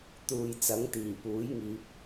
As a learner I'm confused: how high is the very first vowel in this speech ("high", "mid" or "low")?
high